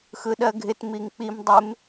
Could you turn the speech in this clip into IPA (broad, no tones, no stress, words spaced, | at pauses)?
xɯɗɜɡʱɪt miŋk͡pim dˤɪm